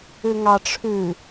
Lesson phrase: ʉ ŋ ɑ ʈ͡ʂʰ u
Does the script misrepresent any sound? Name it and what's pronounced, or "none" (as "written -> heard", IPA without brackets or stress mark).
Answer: u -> ʉ